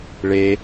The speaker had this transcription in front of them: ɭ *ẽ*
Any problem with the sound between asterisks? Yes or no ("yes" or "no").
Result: yes